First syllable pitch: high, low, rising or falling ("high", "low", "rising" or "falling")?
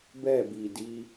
falling